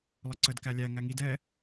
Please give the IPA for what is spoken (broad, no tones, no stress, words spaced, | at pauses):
lˠəǀəd kælʲæ ŋæŋid ɛ